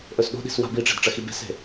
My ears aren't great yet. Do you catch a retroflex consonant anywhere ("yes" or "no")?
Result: yes